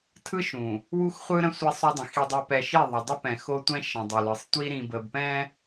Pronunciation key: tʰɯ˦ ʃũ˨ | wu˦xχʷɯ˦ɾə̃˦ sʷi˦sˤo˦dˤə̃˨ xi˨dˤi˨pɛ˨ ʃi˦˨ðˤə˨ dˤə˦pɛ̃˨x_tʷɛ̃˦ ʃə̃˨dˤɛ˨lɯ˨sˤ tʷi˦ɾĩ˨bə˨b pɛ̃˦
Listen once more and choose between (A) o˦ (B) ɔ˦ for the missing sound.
A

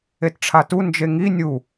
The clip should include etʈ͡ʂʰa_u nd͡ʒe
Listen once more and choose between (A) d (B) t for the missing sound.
B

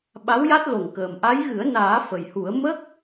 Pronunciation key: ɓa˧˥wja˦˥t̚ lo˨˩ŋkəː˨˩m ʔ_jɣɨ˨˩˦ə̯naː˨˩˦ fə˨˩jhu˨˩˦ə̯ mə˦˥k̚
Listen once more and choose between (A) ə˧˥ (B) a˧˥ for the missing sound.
B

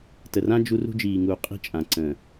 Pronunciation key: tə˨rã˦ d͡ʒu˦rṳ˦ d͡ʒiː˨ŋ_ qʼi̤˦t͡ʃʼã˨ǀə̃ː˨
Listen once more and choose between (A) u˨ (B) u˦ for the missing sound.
A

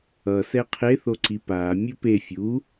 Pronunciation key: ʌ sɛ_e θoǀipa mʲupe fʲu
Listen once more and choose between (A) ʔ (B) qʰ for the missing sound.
B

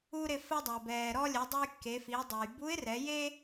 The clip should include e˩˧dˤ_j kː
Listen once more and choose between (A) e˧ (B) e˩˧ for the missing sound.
A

